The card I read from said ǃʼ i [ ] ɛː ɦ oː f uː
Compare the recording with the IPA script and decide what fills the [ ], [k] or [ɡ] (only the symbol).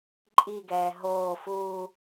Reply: ɡ